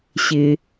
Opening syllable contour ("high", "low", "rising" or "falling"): low